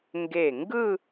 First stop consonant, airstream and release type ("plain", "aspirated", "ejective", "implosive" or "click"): plain